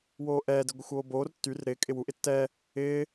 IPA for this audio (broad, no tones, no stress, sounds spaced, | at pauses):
w oː ʔ ɛː d ɪ ɡʷ ɪ xʷ oː b oː r tː y r ɾ ɪː kʼ ɪ w u ʔ ɪ tː ɛ | ɪː